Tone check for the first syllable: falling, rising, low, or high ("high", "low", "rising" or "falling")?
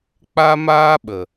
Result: high